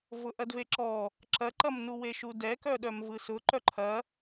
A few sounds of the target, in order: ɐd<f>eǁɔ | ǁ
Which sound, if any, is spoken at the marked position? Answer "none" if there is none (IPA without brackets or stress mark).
v